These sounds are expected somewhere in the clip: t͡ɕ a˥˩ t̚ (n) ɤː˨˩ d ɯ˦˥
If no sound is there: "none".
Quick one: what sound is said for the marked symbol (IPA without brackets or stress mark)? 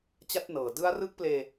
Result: n